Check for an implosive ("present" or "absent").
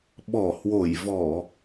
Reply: present